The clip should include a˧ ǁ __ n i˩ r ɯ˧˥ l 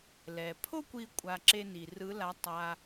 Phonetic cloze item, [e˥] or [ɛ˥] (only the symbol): e˥